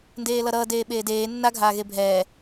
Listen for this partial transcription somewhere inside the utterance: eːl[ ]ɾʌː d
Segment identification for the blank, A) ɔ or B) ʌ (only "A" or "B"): B